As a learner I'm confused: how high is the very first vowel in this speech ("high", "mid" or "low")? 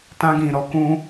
low